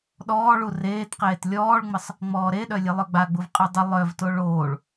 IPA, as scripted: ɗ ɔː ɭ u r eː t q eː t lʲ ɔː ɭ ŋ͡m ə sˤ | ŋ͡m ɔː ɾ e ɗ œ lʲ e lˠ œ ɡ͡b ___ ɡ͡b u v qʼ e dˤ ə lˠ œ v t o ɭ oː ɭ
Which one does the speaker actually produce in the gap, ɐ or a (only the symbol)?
a